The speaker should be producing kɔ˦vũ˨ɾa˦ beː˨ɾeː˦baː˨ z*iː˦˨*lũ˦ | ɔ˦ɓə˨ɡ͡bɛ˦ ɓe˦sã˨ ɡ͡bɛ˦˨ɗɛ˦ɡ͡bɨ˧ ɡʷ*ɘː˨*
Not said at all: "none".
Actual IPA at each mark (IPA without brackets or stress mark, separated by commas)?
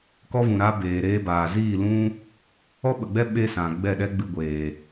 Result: iː˦˨, eː˨